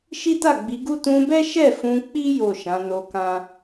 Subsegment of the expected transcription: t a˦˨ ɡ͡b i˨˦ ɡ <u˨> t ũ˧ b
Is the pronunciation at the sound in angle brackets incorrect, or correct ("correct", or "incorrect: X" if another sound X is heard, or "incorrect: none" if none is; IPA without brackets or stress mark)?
incorrect: u˦